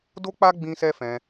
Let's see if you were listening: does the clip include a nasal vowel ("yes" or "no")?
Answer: yes